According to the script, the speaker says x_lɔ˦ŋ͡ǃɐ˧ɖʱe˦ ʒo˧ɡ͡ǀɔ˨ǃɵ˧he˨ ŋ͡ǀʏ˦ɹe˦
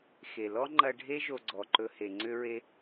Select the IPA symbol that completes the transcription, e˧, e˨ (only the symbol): e˨